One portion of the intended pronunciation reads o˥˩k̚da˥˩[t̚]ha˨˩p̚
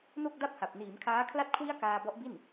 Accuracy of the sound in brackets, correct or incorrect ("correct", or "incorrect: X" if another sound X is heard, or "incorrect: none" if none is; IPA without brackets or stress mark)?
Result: incorrect: p̚